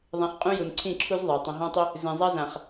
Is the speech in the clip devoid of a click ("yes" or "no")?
no